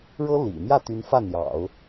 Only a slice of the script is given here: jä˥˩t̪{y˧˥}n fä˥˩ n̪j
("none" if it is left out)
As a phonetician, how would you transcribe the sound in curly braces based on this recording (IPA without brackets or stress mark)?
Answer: y˧˥